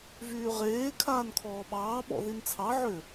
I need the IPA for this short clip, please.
v yː ʁ eː kʰ aː n kʰ ɔː ɓ ɑː ɓ ɔ̰ ð i n t͡sʰ ɑ ʕ ʏ

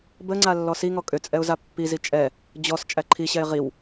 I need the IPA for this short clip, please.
b ə ŋ͡ǀ a lː ɔ s i ŋ ɔ kʼ ʏ t͡sʼ ɛ ʊ̯ z a pː i z i t͡ʃʼ ɛ | d͡ʑ ɔ s t͡ʃʼ æ ǃʰ i ɕ ɛ ɪ̯ ʁ i w

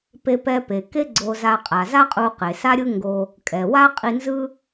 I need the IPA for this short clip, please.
p e˧ p ɛ˧ p e˩ k e˥ ɡ͡ǀ o˧ z a˧ qʼ a˩ z a˥ qʼ u˧ q e˩ s a˥ ɾʲ ɯ˥ ŋ ɡ o˧ | kʼ ɛ˩ w a˥ qʼ i˧ n z ɯ˥

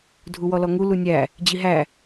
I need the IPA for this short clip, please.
dʱ u w ɔ l ɔ ŋ u l u nʲ æ | d͡ʑ i ɦ æ

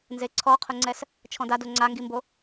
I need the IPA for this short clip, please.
n z e ǀʰ ɔ qʰ ʊ ŋ͡ǀ ɛ s | t͡ʃʰ ɔ̃ d a d o ŋ͡ǀ a ŋ ɡ i m b o

